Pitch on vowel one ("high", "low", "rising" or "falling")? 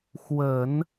low